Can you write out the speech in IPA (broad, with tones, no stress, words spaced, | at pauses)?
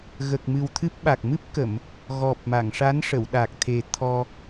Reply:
ɣə˨˩k̚mɨ˨˩wt̪ʰɨ˦˥p̚ ɓa˨˩k̚mɨ˦˥p̚kə˨˩˨m | ɣɔ˨˩p̚ma˨˩˨ŋʂa˧˥nʂə˨˩˨w ɗa˨˩k̚t̪ʰe˨˩ t̪ʰɔ˧